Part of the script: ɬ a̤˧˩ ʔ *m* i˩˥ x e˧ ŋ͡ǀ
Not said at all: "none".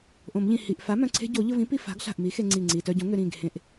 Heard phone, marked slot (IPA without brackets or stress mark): m